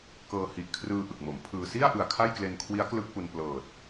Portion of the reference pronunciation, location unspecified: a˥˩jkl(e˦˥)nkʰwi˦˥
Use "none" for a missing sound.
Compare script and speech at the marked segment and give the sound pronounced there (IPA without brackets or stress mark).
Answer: e˧